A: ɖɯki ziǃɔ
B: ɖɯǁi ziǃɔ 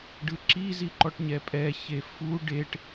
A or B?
B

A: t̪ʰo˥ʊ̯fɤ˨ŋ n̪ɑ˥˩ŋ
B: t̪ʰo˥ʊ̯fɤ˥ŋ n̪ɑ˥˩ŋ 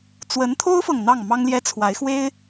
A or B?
A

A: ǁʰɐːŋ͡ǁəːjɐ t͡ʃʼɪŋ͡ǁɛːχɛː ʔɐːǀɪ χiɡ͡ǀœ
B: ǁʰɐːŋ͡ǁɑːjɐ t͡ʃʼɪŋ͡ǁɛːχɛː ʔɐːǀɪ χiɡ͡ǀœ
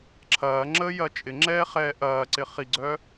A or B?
A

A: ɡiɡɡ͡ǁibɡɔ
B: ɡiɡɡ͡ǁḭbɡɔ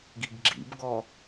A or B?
B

